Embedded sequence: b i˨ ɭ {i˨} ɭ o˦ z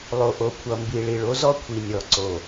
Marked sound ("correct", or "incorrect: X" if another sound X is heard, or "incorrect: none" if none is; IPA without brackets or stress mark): correct